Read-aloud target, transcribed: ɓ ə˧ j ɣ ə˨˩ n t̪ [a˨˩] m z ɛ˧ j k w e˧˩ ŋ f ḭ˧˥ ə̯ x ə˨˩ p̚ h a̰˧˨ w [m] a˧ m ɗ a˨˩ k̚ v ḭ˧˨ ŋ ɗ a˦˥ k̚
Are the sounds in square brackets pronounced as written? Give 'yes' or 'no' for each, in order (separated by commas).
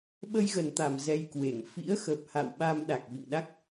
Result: yes, no